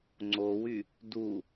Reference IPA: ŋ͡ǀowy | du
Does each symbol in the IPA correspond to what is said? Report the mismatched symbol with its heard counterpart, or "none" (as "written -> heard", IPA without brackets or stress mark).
none